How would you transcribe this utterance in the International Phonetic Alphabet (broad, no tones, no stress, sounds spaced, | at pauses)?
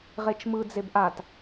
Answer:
ʁ e t͡ʃ m ɯ d͡z e b ʔ a t